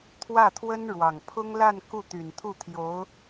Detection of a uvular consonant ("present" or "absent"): absent